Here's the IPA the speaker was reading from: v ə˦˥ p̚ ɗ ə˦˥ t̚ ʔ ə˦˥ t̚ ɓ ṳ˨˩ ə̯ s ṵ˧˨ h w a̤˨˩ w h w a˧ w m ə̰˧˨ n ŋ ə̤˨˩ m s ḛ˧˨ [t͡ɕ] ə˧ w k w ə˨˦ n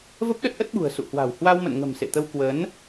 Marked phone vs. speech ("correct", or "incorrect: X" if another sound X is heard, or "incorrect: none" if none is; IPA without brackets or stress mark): incorrect: t̪